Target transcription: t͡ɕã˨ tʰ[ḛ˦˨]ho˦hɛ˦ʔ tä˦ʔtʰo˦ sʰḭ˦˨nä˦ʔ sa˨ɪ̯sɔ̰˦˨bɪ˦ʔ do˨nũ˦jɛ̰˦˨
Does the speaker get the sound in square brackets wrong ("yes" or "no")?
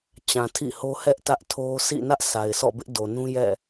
yes